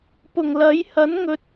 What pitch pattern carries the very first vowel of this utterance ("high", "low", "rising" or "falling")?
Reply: low